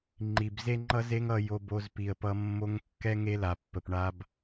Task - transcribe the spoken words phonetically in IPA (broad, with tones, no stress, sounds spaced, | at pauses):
ŋ͡ǃ i˨ b z e˦ ŋ͡ǃ ʌ˦ z e˦ ŋ ʌ˧ j o˧ b o˧ z p i˨ ə̯ p ʌ˧ mː o˦ ŋ kː ɛ˦ ŋ e˦ l a˨ pː ə˨ p ɳ a˧ b